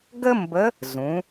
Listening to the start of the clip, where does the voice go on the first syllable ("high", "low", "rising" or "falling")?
high